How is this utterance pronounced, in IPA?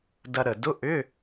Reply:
d ɐ˧ ɾ ə˨˩ d ʊ˧˥˧ ʔ ʏ˧˥˧

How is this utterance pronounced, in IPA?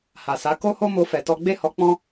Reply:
h a˨ s a˨˦ k o˦ h o˦ m o˧ f ɛ˨ t ɔ˧ ɡ͡b e˦ h ɔ˧ k͡p ɔ̃˦

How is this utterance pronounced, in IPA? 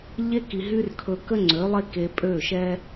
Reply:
ʎ e˦ k i˨ ɦ y˦ r kʰ ɵ˧ k ə˦ ŋ͡ǀ ø˨˦ lˠ e˦ k e˧ pʼ ø˦˨ ʃ ɛ˦

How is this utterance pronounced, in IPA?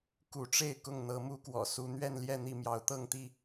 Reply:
k u˨˦ ʈ͡ʂ e˥˨ ɪ̯ k ʊ˥˨ ŋ n̪ ɤ˨˦ m u˦ k w ɔ̰˨˩ s u˨˦ n̪ ɥ ɛ˥˨ n l j ɛ˥˨ n̪ i˥˨ m j ɑ˨˦ ʊ̯ t̪ ɤ˥˨ ŋ t̪ i˥˨

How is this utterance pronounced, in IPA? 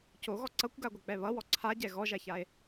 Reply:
c o ɣ ɔ ǀ ʌ kʷ ɡ a ɡʷ ʌ k͡p ɛ β ʌ w ɔ ǀʰ a ɟ ɛ ɣ ɔ ʒ a ç a e̯

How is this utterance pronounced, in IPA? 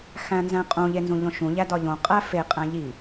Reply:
x æ̃ n z æ̃ qʼ ũ ʎ e n z ũ ʎ õ ʃ ũ ʎ æ d ɒ ʎ õ qʼ æ f e qʼ æ̃ ʎ i

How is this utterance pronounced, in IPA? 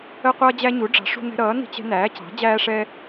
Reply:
ə˦ qʷ ʌː˦ d͡ʑ æ˦ ɲ u˨˥ ɖ͡ʐ ɑ̤˨˥ ʂ ṳ˦ n ɛ̤˦ ɾ ʌː˨˥ n i̤˦ t͡ɕ ɛ̤˦ n æː˨˥ c ɑ̤˨˥ d͡ʑ æː˦ ʂ ɛː˦

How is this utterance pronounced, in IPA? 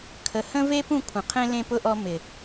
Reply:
kʰ ə˨ h ə̃˦ v e˦ p ũ˦˨ kʷʰ ə̃˨ qʰ ẽ˦ l ẽ˧ p ʊ˧ ʔ ɔ˧ m ɪ˨

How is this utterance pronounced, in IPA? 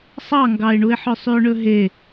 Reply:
sˤ ɑ ŋ ɡ ɑ ɪ̯ ɳ u ɪ̯ ħ œ sˤ y ʊ̯ ɳ ɵ ɦ e

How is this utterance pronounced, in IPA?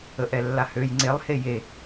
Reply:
ə ʔ ɛ lː a h ø j ŋ͡ǀ e lˠ h e j e

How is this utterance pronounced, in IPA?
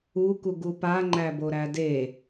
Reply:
u k u ɡ u p a ŋ͡ǃ æ b o ɾ æ d e

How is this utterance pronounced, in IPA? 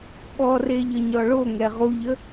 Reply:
ɓ ɔ r e ʎ ə ɲ ɔ ɭ o ŋ ɛ ʁ u ʎ ə

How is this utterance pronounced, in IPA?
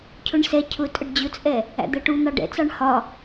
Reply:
cʰ ʊ ɳ s ɛ cʰ ʊ tʼ ə ɖ d͡ʑ ʊ t͡sʼ ɛ | æ̰ d̪ ɜ ʈ u n̪ ɑ ɖ ɛ̰ t͡s ɑ ɳ h ɒ

